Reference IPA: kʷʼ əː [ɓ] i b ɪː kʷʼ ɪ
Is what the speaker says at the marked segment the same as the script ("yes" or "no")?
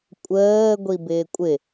no